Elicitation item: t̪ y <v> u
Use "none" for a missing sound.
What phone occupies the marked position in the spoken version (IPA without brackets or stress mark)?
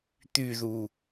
ð